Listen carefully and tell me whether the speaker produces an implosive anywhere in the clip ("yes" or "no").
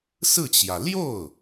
no